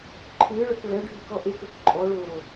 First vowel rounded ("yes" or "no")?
no